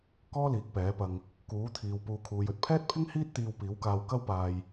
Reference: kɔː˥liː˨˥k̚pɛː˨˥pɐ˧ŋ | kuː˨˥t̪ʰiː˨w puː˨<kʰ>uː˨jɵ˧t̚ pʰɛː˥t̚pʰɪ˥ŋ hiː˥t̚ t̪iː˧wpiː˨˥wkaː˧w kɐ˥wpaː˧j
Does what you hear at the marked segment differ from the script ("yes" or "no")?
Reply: no